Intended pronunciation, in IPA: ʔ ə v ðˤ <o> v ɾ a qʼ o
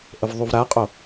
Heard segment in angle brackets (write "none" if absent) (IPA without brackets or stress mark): u